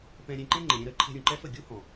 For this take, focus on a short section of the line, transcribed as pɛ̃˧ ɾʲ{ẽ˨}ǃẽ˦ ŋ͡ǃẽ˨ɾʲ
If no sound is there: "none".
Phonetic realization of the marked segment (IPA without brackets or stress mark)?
ẽ˧